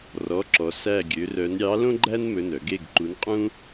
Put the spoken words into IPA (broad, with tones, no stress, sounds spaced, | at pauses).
r ɔ˩˧˩ ǁ ɔ˩ s æ˥˨ ɡʲ ø˨˥ r œ˨˥ n ɾʲ ɑ˨˥ l õ˥ ɡ͡ǃ æ˥ n m ɵ˩˧˩ n œ˧˩˧ ɡ e˩˧˩ ɡ ǃ u˨˥ n qʼ ũ˥